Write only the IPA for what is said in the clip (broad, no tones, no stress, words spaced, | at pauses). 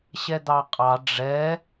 ɕɛd̪ɑqʼɑ ɖ͡ʐɛ